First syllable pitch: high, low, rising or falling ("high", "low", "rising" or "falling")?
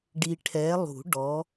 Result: low